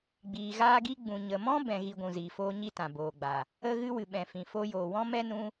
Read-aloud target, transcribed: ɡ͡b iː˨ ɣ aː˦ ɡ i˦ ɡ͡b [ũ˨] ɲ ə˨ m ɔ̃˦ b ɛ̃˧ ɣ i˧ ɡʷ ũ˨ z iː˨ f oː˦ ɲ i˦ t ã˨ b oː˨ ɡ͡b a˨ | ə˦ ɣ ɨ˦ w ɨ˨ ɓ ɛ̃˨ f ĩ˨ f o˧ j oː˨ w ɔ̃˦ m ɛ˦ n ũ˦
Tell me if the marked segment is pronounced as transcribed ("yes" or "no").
yes